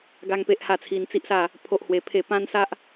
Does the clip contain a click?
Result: no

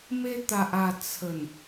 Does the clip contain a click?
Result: no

